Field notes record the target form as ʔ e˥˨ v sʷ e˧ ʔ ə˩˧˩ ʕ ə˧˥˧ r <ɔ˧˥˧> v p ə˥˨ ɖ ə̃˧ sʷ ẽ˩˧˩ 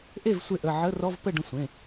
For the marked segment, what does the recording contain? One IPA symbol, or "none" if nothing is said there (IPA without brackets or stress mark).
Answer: ɔ˧˥˧